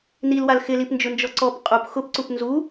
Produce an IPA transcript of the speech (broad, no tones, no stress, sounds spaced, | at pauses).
n i l w a l x ɪ l i p n d͡ʒ ʊ n d͡ʒ ɔ ǀ ɔ p qʼ u p x ʊ p ǀ u p n z u